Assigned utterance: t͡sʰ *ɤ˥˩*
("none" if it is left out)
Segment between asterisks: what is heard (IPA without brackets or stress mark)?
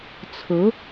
ɤ˧˥